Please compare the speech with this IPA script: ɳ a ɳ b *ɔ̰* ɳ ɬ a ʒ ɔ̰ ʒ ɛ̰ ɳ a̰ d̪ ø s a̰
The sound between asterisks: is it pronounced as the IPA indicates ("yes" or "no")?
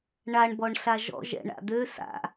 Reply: no